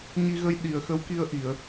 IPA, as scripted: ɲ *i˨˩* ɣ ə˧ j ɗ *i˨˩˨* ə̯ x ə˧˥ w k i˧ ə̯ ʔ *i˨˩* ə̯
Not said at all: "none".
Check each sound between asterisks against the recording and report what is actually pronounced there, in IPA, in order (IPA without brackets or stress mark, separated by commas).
i˧, i˨˩˨, i˨˩˨